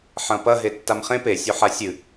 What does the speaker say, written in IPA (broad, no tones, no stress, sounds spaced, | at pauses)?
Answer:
ħ ɐ̃ p ɐ ɦ e tː a m χ ẽ p e sʲ o ħ a sʲ ɨ